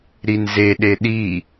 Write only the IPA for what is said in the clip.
ɾ i n z e ɗ e ɗ i

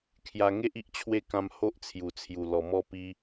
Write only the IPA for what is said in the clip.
kʰ j a˧ ŋ e˦ ʔ i˦ ʔ t͡ɕʰ w e˥˧ k ã˧ m h o˦ ʔ t͡sʰ j u˨˩ t͡sʰ j u˨˩ l ɔ˨˩ m ɔ˧ p i˧

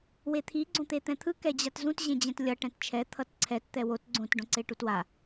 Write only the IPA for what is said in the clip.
w e t̪ʰ i ɡ͡ǀ õ t̪ e t̪ ɛ̃ t̪ʰ ɯ k ɛ d͡ʑ a t z ũ t ʑ ẽ d͡ʑ ɛ̃ t lʲ ʌ ʈ ɛ̃ t t͡ʃʰ ɛ t̪ʰ ʌ t ǀʰ ɛ t t̪ ɛ w o t ɡ͡ǀ õ t ɖ õ ǀ e ʈ u t w a

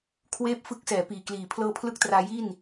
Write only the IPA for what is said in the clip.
kʰ w eː˥˩ p̚ f ɯ˦˥ k̚ s ɛː˩˦ p iː˨˩ k l iː˨˩ pʰ l ɤː˧ pʰ l ɯ˦˥ k̚ t r aː˧ j i˥˩ n

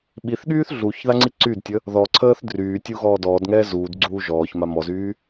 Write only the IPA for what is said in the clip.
ɓ i θ ɠ yː θ ɮ u ç ð a ŋ͡ǀ i ǀ y d tʲ ə | ð ɔ ǀʰ əː θ d r yː tʲ u ɣ ɔː d ɔː d ŋ ɛː z uː d ɡ͡ǀ uː ʒ ɔː ç m a m ɔ z yː

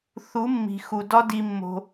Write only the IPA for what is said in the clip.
θ u˨˦ mː i̤˨ x u˨ d ɒ˦ d i˧ mː o̤˧

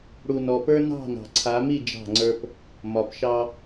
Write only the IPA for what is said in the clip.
ɽ u˨ n ɔ˨ p ə˞˦ n ɑ̤˦˨ n ɑ̤˨ ǀʰ a˨˦ m i˦˨ d͡ʒ ɑ̤˦˨ ŋ͡ǀ ə˞˦ p | m ɒ˨ p ʃ ɑ˦

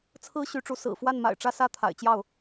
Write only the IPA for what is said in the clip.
t͡sʰ ɹ̩˥ ɕ y˧˥ ʈ͡ʂ u˧˥ s ɹ̩˨˩ f w a˥˩ n m a̰˨˩ ɪ̯ ʈ͡ʂ ä˥ s ä˥ t̪ʰ a̰˨˩ ɪ̯ t͡ɕ j ɑ˥˩ ʊ̯

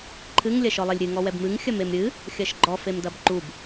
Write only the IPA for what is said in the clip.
ǃʰ ɨ ŋ lʲ ɐ ʃ ɔ lˠ e lʲ ɾʲ ɨ ŋ ɔ w ɛ b m ɨ ŋ xʲ ɐ m e m ɾʲ ɨ | xʲ ɐ ʃ ɡ͡ǃ ɔ f e m d ɐ b ǃ u b

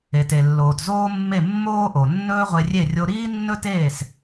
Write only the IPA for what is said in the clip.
e˩ t e˩ lː oː˩ t z oː˥ mː e˥˩ mː oː˥ ʔ o˩ nː ɵː˥ ʁʷ e˧ rʲ e˥˩ rʲ o˧ ɾ iː˥ nː ɵ˥ t eː˥˩ s

